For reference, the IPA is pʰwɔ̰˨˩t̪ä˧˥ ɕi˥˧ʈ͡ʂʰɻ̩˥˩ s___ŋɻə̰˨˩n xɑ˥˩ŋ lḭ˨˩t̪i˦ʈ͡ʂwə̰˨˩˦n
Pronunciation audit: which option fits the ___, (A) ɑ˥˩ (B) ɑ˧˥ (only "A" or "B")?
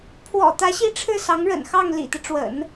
B